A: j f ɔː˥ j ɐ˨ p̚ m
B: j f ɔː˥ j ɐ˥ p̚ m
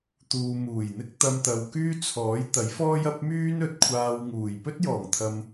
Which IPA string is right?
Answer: B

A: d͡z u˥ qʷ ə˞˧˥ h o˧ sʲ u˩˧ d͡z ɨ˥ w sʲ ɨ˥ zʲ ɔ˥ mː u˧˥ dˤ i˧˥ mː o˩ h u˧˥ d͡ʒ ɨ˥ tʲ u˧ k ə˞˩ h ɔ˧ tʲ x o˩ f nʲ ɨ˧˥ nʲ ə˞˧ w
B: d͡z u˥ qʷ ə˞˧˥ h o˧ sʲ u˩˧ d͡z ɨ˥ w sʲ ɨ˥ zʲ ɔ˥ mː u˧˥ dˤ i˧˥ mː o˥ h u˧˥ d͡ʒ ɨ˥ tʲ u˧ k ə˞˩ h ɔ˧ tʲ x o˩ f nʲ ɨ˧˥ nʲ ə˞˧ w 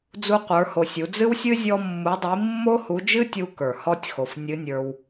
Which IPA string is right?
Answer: B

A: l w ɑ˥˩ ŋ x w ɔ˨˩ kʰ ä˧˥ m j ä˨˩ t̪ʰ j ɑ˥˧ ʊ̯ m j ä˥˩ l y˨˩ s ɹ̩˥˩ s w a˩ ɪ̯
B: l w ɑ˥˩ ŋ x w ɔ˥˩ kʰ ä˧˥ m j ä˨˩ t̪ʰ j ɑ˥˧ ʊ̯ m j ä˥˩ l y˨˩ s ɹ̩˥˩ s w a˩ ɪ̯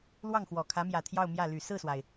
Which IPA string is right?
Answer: A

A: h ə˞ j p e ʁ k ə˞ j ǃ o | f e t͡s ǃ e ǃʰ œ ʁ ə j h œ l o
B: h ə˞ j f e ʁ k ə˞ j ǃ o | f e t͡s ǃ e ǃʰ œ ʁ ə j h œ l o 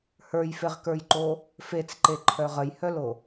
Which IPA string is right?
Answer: B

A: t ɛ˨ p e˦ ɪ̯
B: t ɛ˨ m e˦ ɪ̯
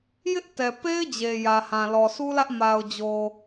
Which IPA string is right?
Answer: A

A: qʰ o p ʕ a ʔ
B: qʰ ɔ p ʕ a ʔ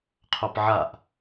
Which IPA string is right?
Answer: A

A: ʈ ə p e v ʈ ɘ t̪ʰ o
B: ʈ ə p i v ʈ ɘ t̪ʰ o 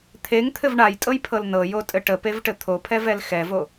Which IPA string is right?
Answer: A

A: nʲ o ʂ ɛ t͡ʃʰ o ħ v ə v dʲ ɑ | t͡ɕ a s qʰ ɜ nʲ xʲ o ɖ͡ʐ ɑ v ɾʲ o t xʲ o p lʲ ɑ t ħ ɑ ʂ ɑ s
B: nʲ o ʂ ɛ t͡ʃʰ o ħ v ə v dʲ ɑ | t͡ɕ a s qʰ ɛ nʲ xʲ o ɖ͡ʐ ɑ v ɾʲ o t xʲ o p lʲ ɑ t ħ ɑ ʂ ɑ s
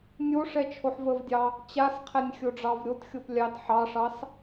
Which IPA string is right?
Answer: B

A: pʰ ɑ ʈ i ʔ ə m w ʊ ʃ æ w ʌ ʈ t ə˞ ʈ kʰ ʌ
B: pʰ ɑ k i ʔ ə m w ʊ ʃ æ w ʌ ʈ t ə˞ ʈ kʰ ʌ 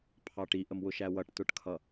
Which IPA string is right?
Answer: A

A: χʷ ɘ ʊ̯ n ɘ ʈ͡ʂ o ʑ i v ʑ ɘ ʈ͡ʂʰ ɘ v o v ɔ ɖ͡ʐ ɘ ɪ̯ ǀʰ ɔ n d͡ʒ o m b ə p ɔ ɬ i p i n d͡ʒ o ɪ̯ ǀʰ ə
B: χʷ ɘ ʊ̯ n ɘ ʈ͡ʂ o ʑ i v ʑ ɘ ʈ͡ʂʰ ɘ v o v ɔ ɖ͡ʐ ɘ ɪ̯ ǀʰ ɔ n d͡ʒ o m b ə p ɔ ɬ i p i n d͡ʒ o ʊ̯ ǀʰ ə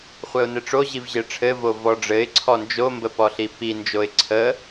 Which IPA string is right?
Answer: A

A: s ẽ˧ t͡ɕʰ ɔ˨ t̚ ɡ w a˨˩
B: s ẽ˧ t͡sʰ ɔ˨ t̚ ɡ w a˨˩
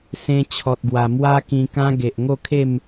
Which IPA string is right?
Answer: A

